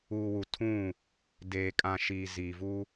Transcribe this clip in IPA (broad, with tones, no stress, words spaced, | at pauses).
uː˨wu˨ tʰũ˦˨ | deː˨kʼã˨ʃiː˨ ziː˨vu˦